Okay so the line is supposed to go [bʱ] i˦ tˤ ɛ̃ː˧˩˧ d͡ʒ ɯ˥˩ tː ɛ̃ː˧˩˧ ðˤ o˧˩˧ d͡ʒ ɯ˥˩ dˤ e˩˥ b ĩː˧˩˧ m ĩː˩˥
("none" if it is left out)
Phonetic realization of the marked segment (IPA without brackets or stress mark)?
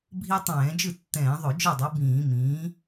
bʱ